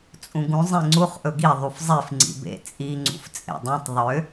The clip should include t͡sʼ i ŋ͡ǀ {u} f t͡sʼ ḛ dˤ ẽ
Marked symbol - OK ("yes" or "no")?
no